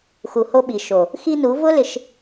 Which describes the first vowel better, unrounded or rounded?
rounded